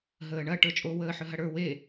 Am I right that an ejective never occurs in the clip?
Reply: no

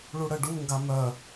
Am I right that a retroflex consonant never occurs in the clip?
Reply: no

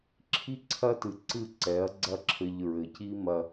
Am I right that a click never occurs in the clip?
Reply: no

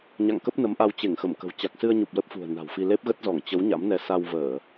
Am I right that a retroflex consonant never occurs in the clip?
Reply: yes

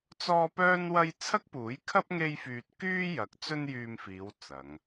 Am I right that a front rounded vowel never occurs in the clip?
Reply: no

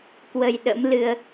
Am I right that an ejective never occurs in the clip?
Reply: yes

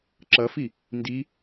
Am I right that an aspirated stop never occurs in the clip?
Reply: yes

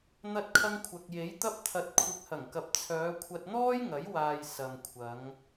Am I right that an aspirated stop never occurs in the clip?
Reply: no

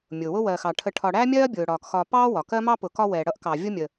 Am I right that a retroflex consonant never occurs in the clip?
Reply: no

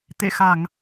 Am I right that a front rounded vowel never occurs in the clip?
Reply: yes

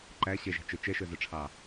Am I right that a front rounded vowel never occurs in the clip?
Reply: no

